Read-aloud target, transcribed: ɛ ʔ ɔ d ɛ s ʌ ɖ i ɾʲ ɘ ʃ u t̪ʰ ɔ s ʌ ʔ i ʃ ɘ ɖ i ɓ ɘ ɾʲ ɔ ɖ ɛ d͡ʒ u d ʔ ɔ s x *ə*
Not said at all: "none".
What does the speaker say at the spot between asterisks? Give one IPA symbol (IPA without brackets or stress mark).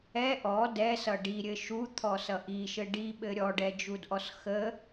ə